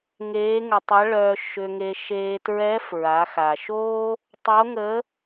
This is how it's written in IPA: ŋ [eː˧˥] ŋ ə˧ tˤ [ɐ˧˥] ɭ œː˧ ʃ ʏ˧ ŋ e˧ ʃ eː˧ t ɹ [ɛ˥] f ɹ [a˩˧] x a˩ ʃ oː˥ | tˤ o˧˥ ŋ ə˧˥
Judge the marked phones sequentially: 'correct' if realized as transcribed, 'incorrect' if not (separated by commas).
correct, correct, incorrect, correct